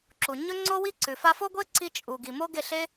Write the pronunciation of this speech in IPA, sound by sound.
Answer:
ǁu˨ ɲɵ˦ ŋ͡ǀo˦wi˦ ǀʉ˨ fa˧fo˦ ɡʷe˦ǀi˧ t͡ʃʼu˨ ɡi˨mo˦ɡe˦˨ɬe˦

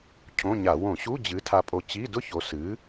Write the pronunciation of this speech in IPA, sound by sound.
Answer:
cʰõ˧˥˧ɲa˧˩˧ wõ˧˩˧ɕu˧˥˧ d͡ʑɨ˨˥tʰa˧pʼo˧ t͡ɕi˧˥˧dʊ˥ço˨˥ sɨ˨˥

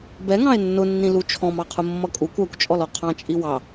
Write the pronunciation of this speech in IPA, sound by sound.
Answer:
bɛŋɑ̃e̯ nːʊnːĩlu t͡ʃʰɔ̃mɑqʰʊ mːʌkʼukʷ ɜkʷt͡ʃʼɔlɔ qʰɑ̃t͡ʃʼi wɑ

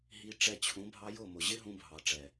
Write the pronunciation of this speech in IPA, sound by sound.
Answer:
ɦi˧ ʈ͡ʂɛ˧t͡ɕʰũ˨˦ bʱɑ˧jʊ˦˨mʊ˨ ʑɪ˦ɦũ˧bʱɑ˨ʈ͡ʂɛ˨

